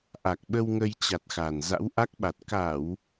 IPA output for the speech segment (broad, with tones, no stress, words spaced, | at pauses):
ʔa˨˩k̚ɓə˧wŋə˧jt͡ɕa˨˩t̚ xa˨˩n za̰˧˥wʔa˦˥k̚ɓa˨˩t̚ ka˧˩˨w